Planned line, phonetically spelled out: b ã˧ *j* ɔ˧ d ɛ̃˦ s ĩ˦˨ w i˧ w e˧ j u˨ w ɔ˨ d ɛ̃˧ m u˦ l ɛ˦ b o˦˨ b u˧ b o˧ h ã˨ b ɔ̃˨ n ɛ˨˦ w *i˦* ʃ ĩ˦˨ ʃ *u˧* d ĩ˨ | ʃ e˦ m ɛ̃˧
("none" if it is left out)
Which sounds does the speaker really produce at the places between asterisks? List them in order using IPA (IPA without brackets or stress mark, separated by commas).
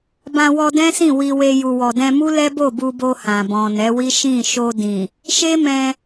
w, i˦, o˧